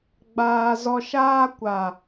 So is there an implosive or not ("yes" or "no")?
no